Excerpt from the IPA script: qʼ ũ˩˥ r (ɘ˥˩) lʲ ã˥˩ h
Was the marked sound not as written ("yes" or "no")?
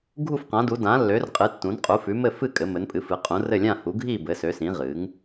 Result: no